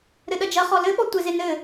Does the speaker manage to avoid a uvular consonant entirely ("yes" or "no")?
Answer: no